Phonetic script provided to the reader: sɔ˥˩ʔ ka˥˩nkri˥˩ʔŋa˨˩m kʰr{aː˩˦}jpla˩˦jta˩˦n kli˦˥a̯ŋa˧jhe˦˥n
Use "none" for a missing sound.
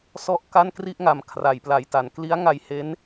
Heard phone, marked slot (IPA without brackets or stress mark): a˩˦